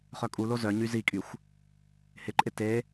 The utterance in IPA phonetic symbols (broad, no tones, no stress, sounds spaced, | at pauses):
χ œ kʼ u l o z œ ɲ y z i kʼ y xʷ | h ɪ ǃʼ ɪ t e